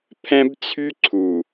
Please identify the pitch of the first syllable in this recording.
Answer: high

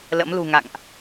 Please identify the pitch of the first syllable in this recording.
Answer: rising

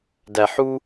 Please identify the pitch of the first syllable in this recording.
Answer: low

